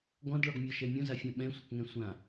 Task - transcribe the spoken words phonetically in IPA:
ɡ ɔ̃ d ɭ ɔ ɡ mʲ ɔ ʃ ɛ mʲ õ z a fʲ ã ɓ ɛ̃ sʷ ɪ k ŋ ɛ̃ sʷ ã

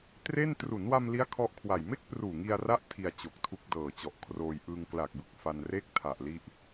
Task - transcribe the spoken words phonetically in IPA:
t r e˥˩ n t r u˩˦ n w a˧ m l i˦˥ a̯ kʰ ɔ˦˥ ʔ kʰ w a˨˩ j m e˥˩ k̚ p r uː˨˩ ŋ i˧ a̯ r a˦˥ ʔ tʰ i˧ a̯ t͡ɕ o˨˩ k̚ tʰ u˦˥ k̚ d ɤː˨˩ t͡ɕ ɔ˨˩ ʔ kʰ r oː˧ j ʔ ɯː˧ ŋ k l a˨˩ k̚ b ɯ˨˩ k̚ f a˧ n r e˥˩ k̚ tʰ a˨˩ ʔ l i˦˥ ʔ

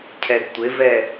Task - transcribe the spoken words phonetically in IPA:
cʰ ɛ ɡ tʷ ɪ v ɛ

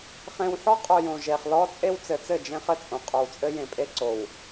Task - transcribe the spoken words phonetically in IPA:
χ ẽ˨ w ħ ɔ˦ qʼ o˨ j õ˨ ʒ e˨ χ l ɔ˦ t͡sʼ e˦ w t͡s ɘ˨ t͡s ɘ˦˨ d͡ʒ ẽ˦ χ ɘ˦ t͡sʼ õ˨ qʼ o˨ w t͡sʼ ɘ˦ j ẽ˨ pʼ e˦ ǀ o˨ w

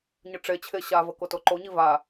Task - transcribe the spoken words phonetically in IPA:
ɲ ə ʈ͡ʂ e t͡ɕʰ e ɕ a v ə k o t o ǃ o ɲ i v a

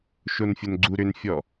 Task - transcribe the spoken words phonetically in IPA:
ʃ o n fʲ o n ɡ͡ǀ u ɾ ʏ n fʲ ɔ

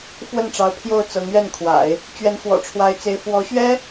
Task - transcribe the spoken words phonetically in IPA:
f w ə˥˩ n ʈ͡ʂ ɑ˧˥ ʊ̯ pʰ j o˥˩ ʊ̯ t͡s ɤ˧˥ ŋ ɥ ɛ˥˩ n kʰ w a̰˨˩˦ ɪ̯ | t͡ɕ ɥ ɛ˧˥ n x w ɔ̰˨˩ ʈ͡ʂʰ w a˧˥ ɪ̯ t͡s e˧˥ ɪ̯ f w ɔ˧˥ ɕ ɥ ɛ˥

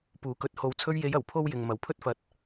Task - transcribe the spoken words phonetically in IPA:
p uː˨˥ k ɵ˨˥ t̚ h o˨ w t͡sʰ ɵ˧ ɥ j e˨˧ j ɐ˨˩ w pʰ o˥ w j ɪ˨ ŋ m ɐ˨˥ w pʰ ɵ˥ t̚ f ɐ˧ t̚

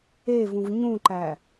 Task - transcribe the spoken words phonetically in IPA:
e v ũ v ɲ ũ ǃ æ

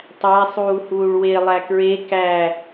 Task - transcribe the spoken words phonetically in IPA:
tˤ æ sˤ uː h uː ɭ w e lˠ æ k ɹ e k æ

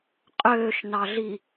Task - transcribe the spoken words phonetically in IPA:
qʼ øː ʃ n ɑ ɮ i

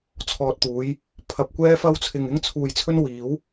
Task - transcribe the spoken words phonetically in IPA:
t͡sʰ ɔː˨ t̚ t̪ uː˨˧ j | pʰ ɐ˧ p̚ kʷ ɛː˥ f ɐ˥ w t͡sʰ ɪ˧ ŋ ɪ˥ ŋ t͡sʰ uː˧ j t͡sʰ ɵ˥ n w iː˨˥ w

